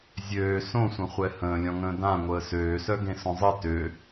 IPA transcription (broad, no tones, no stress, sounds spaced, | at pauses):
zʲ øː s õ sʷ ə̃ χʷ ɛ h ə̃ː lʲ ɔ̃ ŋ ə̃ː d ã ŋʷ əː s øː s œ ɡ ẽ s õ zˤ ə t ø